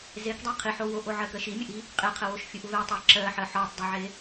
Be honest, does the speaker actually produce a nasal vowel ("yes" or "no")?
no